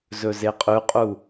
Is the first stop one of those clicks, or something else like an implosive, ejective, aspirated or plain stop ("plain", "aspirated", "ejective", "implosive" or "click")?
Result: ejective